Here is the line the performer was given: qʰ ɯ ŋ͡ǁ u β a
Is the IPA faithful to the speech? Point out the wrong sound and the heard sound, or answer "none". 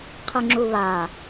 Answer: none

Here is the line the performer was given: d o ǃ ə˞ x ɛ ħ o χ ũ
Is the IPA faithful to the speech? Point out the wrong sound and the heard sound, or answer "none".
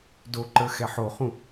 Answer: none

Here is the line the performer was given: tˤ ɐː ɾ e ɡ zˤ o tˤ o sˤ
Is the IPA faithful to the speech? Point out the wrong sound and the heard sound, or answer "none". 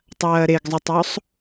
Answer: none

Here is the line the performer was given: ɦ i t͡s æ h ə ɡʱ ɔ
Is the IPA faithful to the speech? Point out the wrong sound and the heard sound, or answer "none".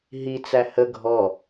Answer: none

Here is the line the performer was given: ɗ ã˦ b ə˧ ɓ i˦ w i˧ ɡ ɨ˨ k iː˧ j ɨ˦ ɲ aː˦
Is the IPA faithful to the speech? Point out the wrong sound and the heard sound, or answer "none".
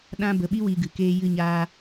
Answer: iː˧ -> eː˧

